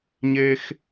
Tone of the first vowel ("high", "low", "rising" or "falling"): high